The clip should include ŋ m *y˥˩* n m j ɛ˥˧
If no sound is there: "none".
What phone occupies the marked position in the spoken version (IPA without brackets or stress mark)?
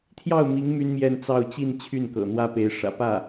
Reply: y˥